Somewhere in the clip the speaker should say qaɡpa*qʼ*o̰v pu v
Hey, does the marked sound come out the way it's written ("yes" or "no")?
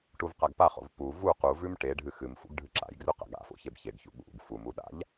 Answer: no